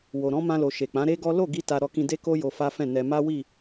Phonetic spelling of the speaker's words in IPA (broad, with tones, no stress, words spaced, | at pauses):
wo˨ɾɔ̃˨˦mã˧lo˨ ʃe˨k͡pã˨˦ɾe˦ɡɔ˦ lo˦˨ɡi˧ ta˧ɾɔ˧ kĩ˧de˦ko˦ jo˧fa˦fɛ̃˦˨nɛ˧ ma˦wi˦˨